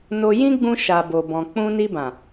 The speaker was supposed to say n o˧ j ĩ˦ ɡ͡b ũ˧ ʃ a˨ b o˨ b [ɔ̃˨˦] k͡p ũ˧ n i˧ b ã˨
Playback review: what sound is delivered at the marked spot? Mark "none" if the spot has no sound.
ɔ̃˨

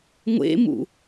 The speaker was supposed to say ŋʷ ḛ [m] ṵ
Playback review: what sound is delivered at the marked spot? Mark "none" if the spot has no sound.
m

